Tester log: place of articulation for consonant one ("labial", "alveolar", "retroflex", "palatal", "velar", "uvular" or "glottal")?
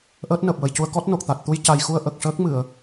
glottal